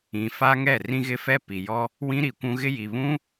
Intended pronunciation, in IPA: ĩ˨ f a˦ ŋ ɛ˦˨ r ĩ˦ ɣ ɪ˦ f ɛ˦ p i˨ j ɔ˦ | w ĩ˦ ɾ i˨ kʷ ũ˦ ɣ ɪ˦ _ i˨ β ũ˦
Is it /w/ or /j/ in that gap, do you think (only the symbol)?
j